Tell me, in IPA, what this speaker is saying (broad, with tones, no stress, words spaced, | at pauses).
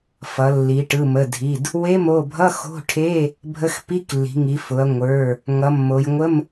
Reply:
fʌ˩˧lːi˩˧ ʈɯ˩˧˩mə˩˧˩dʱi˩˧˩d | we˧˥˧mo˩˧˩bʱʌ˧˥˧ xo̤˧˥˧ʈʰe˧˥˧ | bʱə˧˥˧xpi˧˥˧klːi̤˩˧ŋi˩˧ fʊ˩˧ɐ̯ ŋʷə˞˩˧˩ | ŋʌ˩˧mːo˩˧jŋʷə˧˥˧m